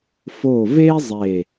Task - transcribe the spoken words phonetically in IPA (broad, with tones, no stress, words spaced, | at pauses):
fo˧˩ve˥ zˤeː˧˩